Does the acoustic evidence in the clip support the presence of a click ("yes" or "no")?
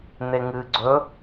yes